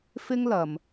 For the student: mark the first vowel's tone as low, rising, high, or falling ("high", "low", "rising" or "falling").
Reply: high